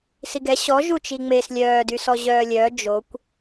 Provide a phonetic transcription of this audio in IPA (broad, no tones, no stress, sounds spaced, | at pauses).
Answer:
s i ɡ ɛ ɕ ɔ ʒ u t͡ʃ i ŋ͡m e s lʲ œː d y s ɔ ʑ œː lʲ œː d͡ʒ o kʷ